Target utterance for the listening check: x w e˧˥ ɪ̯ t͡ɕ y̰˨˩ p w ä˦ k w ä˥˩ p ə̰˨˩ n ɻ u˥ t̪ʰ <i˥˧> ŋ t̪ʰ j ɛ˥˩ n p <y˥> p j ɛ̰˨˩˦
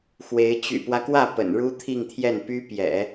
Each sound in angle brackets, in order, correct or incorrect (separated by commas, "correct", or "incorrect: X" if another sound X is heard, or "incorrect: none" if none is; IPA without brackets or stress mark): correct, correct